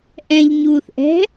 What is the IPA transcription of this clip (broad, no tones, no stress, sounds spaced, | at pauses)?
ʔ ɛ̃ ʎ ɲ uː θ ʔ ɛ̤